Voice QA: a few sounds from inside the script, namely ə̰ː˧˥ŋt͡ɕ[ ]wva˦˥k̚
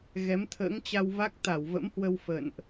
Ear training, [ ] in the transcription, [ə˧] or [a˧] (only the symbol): a˧